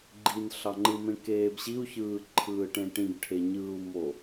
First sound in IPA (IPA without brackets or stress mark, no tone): ɡ͡ǃ